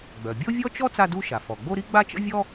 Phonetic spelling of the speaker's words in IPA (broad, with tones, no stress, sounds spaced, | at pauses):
ɡ͡b œ˩ bʲ o˥ vʲ ɔ˥ t͡ʃ ɔ˥ t͡s a˥ d u˥ ʃ a˩ f ɔ˩ ɡ͡b o˥ ɾ i˥ ɡ͡b a˥ t͡ʃ ə̰˥ vʲ ɔ˥